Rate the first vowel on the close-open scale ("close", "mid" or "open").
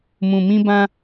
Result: close